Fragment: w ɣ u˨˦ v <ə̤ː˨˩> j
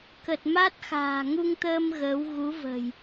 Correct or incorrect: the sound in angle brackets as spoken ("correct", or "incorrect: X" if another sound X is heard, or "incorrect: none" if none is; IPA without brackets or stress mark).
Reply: correct